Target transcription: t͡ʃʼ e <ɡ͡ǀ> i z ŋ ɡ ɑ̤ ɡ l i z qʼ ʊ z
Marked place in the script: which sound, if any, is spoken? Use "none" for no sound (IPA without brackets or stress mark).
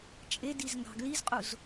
d